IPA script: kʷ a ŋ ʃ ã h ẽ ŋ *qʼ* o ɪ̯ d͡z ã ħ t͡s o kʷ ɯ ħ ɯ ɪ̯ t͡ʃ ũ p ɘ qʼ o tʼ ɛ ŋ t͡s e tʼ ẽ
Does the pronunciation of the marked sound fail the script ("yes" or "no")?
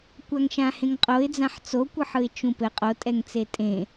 no